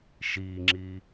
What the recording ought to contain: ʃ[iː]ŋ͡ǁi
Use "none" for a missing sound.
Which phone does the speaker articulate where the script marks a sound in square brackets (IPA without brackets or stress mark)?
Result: iː